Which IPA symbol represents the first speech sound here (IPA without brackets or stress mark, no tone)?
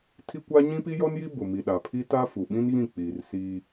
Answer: tʰ